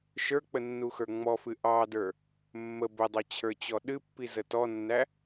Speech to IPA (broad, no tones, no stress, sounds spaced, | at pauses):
ʃ ə˞ k͡p ə nː u x ə˞ ŋ͡m ɔ f ɨ ʔ ɑ d ə˞ | mː ə b ə dˤ ɑ t͡ɕʰ ə˞ t͡ɕ ɔ ɗ ɨ pː i z ə t ɔ nː æ